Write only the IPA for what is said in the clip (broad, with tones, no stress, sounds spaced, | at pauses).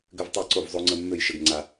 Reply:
ɡ ʏ˦ v tˤ e˦˨ ǀ o˦˨ v zˤ o˦ ŋ͡ǀ ə˦ mː ø˦˨ j ʃ ə˦ ɡ ŋ͡ǀ a˦